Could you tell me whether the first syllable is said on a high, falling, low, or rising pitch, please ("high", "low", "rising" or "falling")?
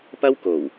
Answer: high